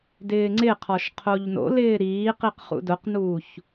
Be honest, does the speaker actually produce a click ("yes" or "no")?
yes